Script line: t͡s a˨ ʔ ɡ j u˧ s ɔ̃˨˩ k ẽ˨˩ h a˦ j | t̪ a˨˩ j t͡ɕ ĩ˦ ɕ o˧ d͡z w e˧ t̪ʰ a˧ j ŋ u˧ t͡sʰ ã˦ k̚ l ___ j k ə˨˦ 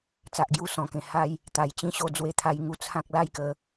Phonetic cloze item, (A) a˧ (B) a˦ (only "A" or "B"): B